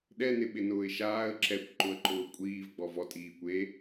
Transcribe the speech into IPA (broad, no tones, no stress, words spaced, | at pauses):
ɗɛnɪɓɪnʊːɪ̯ ʃaːə̯ ǁɛkʷǃʊə̯ǃʊː kʷʼiːvɡ͡bɔv ɔtʼiː kʷe